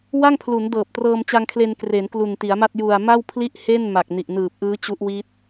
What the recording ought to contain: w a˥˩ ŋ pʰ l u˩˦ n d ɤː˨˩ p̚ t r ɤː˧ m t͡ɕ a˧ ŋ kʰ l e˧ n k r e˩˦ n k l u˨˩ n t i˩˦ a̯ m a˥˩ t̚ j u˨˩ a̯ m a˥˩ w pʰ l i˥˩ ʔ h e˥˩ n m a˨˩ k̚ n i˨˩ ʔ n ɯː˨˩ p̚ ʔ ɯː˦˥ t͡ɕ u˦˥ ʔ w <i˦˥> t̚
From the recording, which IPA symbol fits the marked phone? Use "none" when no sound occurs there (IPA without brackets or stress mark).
i˦˥